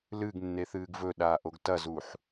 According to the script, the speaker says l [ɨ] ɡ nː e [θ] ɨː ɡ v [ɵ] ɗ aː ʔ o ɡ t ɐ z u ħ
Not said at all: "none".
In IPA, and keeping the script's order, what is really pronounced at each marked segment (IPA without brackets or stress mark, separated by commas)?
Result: ɨ, θ, ɵ